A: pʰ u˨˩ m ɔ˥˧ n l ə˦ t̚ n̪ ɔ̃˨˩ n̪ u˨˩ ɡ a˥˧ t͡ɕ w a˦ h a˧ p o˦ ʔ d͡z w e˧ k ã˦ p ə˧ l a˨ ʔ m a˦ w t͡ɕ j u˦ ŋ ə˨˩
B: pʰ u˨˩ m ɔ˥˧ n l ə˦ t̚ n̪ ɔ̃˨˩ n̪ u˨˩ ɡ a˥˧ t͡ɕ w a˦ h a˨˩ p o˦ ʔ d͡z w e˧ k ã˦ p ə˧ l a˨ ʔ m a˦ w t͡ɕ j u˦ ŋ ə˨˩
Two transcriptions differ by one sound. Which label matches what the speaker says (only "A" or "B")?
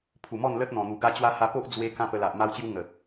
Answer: A